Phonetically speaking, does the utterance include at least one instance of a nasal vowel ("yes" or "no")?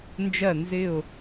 no